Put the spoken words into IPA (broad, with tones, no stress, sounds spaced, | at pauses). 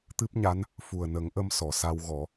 t̪ ɨ˦˥ p̚ ɲ a˧˥ n | f u˨˩ ə̯ n ə˨˩˦ ŋ ʔ ə˧ m s ɔ˨˩˨ s a˧ w ɣ ɔ˨˩˦